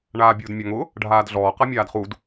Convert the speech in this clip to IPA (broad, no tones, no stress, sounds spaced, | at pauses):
ɳ aː bʲ ʊː d mʲ a ŋ ʊ | ɖʱ aː d ɮ ɔː q a mʲ aː d χ u d